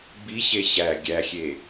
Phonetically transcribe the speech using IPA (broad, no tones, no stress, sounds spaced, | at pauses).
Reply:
b i ɕ e ɕ æ ɡʲ æ xʲ e